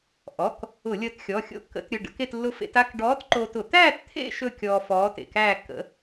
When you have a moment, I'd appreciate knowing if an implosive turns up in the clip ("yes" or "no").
no